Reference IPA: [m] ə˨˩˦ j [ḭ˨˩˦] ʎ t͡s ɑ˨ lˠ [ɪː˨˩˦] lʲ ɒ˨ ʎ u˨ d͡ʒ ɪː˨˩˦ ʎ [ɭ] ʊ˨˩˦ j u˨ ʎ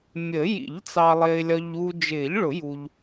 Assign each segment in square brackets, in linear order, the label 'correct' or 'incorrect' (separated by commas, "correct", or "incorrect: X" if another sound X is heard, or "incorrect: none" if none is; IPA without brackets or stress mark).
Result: incorrect: mʲ, correct, incorrect: ɪː˨, correct